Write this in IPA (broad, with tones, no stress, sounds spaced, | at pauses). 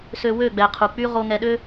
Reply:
s ø˧ w ø˦˨ ɡ͡b ɛ˨ qʰ u˨ k͡p y˦ ʁ o˧ ŋ ɛ˧ ɗ ø˦